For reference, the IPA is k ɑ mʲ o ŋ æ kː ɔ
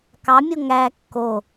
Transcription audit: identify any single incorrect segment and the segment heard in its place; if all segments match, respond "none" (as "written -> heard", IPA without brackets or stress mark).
ɔ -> o